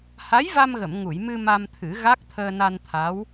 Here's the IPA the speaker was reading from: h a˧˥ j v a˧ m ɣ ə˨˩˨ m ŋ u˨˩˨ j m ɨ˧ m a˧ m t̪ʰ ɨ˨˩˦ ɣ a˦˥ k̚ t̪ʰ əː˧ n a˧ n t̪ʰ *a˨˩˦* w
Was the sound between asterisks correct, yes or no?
no